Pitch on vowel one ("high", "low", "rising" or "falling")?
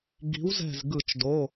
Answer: rising